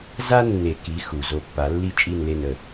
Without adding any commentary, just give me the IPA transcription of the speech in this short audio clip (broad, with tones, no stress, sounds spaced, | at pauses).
z a˥ nː e˨˩˦ k i˩˥ x u˩ z o˧˩ pː a˨˩˦ lː i˥˨ t͡ʃʼ i˥˨ n l e˥˨ n ə˧˩